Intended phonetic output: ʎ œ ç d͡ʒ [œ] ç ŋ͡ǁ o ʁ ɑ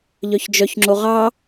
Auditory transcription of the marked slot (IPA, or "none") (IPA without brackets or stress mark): œ